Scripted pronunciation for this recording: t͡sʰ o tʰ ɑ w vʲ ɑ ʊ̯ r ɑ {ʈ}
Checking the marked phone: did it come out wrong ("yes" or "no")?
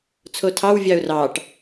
no